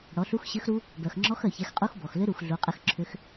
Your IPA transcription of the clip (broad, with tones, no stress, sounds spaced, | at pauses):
ɽ ɔ˨˦ ɬ u˦˥ x ɕ ɘ˦˥ x ɾ u˦˥ | b œ˨ x ŋ͡ǁ ɔ˦˥ x œ˨ ç ɛ˨˦ x qʼ u˦˥ x b ɔ˨ x l ʏ˦˥ ɾ u˨ x ɮ u˨˦ qʼ ɘ˦˥ x ǁʰ ʏ˦˥ x